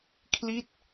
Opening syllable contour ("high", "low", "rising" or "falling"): falling